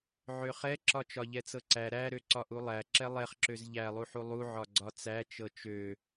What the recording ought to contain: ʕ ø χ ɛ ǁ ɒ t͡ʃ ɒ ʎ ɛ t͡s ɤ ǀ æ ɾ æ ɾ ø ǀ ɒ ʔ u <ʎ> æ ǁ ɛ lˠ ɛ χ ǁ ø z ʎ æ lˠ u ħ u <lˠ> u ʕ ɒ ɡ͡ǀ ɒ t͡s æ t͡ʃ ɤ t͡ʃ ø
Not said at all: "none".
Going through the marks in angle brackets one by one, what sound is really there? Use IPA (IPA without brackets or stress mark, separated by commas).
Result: lˠ, lˠ